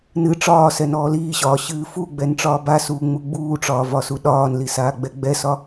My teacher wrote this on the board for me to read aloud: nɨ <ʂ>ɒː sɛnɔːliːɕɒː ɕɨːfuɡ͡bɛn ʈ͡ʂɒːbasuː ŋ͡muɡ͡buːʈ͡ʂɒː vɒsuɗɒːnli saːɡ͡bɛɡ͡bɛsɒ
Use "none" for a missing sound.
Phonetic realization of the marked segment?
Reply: ʈ͡ʂ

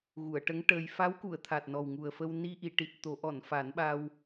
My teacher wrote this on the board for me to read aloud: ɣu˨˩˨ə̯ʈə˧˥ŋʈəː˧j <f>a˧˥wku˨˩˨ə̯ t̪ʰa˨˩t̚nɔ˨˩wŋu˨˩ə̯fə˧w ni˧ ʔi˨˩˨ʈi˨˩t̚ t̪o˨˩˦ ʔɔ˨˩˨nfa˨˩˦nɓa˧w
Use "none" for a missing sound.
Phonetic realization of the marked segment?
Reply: f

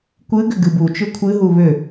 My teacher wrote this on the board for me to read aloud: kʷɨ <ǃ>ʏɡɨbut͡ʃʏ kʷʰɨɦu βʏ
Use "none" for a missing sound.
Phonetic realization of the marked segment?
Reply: ɡ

